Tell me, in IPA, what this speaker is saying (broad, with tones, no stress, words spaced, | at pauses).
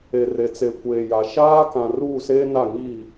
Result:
e˨re˨t͡se˨ kʷeː˨ja˨ ʃaː˦kã˨ ruː˦˨seː˦na˦˨ ŋi˦˨